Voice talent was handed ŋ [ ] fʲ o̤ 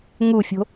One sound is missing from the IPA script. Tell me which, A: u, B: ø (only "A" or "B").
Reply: A